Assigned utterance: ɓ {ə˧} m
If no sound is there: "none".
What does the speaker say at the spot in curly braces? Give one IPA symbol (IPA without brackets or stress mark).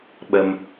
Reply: ə˧